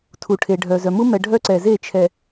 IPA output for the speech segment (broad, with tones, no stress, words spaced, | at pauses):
tʰu˨ʈʰe˨ ɖʱœ˨zœ˨mu˦ mɛ˨ ɖʱœ˦ǀɛ˨ze˦˨ t͡ʃʰɛ˨